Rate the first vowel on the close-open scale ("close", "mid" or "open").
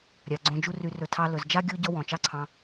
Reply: open